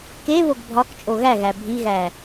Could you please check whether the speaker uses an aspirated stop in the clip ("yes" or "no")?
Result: no